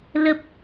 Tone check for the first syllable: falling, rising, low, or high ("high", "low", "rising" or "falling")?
low